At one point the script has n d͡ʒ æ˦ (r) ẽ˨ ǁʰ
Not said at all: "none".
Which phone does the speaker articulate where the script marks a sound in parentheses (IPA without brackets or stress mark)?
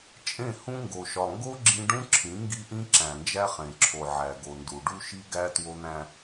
χ